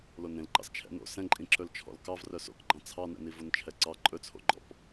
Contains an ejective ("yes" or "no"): yes